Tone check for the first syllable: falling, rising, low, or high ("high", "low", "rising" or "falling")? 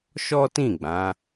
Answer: high